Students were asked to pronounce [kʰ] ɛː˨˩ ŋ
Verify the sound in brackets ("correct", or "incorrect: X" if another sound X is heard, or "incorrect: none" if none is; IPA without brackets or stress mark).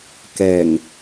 incorrect: k